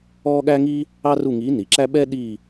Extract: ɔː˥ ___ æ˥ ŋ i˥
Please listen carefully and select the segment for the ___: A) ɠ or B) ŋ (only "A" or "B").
A